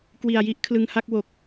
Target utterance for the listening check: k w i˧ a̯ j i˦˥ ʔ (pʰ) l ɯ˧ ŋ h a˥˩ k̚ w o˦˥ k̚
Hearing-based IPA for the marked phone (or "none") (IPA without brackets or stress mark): kʰ